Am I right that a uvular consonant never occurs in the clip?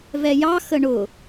yes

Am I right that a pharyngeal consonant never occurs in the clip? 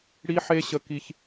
no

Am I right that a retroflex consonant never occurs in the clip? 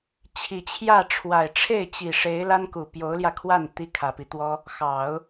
no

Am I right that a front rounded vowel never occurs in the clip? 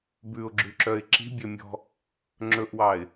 no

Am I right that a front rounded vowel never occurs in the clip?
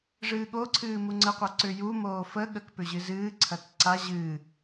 no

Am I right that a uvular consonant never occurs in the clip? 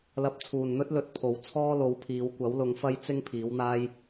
yes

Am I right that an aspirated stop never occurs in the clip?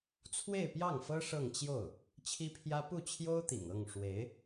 no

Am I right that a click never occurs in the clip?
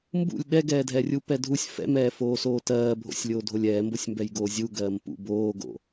yes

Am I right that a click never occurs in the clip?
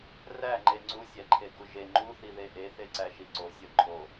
no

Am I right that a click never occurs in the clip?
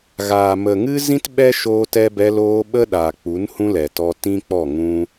yes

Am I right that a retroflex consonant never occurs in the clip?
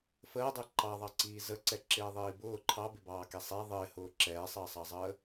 yes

